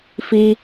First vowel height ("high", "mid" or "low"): high